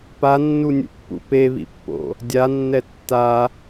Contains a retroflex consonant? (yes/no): no